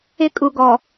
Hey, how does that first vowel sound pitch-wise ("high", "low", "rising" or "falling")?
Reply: high